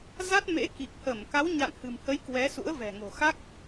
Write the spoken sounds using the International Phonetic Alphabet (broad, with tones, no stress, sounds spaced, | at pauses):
z a˦˥ t̚ m ḛ˧˥ k i˨˩ k̚ h ə˧˩ m k a˨˦ w ɲ a̰˧˨ n h ɨ̤˨˩ m h ə˨˦ j k w ɛ˨˦ s ṵ˧˥ ə̯ v ɛ̤˨˩ ŋ o̤˨˩ x a˦˥ k̚